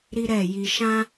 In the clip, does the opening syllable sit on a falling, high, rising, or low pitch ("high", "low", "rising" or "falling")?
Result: high